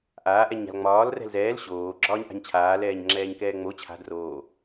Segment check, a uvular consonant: absent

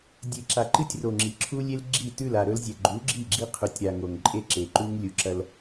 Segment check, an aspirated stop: present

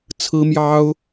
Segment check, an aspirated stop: present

